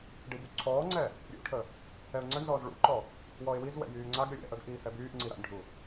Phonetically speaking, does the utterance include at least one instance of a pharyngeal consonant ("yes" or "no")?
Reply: no